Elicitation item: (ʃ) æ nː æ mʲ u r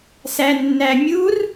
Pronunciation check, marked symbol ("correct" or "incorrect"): incorrect